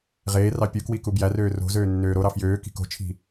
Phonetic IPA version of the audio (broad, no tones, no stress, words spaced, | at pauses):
ʁeːrɑ pʲukwi kubjærøː ro̤zøː nːøːɾoɾɑ fjøː ki̤ko̤t͡ʃʰi̤